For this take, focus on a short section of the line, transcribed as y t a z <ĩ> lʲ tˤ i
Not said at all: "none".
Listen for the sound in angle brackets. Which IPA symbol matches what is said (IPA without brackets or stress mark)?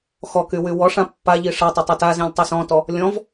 ĩ